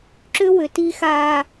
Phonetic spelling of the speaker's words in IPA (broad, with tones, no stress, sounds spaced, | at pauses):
ǁ ʏ˦ w ʏ˨ t i˦ x aː˦